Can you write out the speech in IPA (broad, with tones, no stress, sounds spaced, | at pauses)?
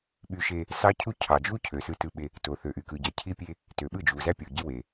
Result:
ɓ y˦ ʃ e˦ | s ɑ˦ cʰ u˦ cʰ ɑ˨ d͡ʒ u˦ cʰ ø˨ s ɯ˦ t ɯ˦ ɓ e˦ | t o˨ θ ø˨ ʔ y˨ k ɯ˨ ɟ æ˨ cʰ i˦ pʲ e˦ | t ø˨ ɓ ɯ˦˨ d͡ʒ u˨ z æ˦ pʲ o˨ ɟ i˦ w e˨